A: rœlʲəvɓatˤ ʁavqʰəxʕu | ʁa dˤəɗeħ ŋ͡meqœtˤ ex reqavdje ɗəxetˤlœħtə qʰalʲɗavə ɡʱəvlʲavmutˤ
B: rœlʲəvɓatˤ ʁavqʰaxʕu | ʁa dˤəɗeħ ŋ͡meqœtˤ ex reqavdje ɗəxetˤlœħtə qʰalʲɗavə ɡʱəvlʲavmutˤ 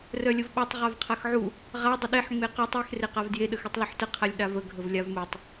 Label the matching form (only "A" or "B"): B